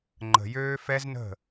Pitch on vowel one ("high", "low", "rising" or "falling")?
low